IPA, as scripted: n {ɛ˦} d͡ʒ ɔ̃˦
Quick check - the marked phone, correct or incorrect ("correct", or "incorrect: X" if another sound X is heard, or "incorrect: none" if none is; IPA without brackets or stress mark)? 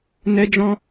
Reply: correct